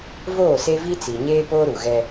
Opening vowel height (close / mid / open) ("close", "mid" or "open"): mid